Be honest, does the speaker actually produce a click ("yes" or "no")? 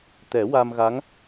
no